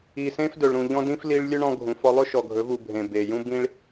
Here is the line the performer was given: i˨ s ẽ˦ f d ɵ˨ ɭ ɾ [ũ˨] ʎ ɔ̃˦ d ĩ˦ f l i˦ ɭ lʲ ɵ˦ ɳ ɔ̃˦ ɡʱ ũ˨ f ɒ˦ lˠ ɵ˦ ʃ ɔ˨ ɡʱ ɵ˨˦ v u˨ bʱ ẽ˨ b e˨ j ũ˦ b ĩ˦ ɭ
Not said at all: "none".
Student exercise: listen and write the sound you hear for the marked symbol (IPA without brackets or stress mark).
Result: ũ˨